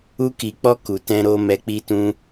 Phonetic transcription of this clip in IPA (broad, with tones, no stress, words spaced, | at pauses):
u˧ki˨k͡pɔ˧ ku˨tɛ̃˧ɾo˧ mɛ˧k͡pi˦tũ˦